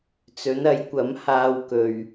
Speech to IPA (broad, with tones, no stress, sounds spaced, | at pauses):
t͡s ɵ˨˥ n ɐ˨˥ j kʷ ɐ˨˥ m h aː˧ w k ɵ˨ ɥ